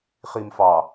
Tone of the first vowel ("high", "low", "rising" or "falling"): low